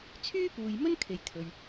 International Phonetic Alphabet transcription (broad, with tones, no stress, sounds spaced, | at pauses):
t͡sʰ yː˥ p uː˨ j m ɵ˥ n kʰ e˨ j t̪ʰ ɵ˨ ɥ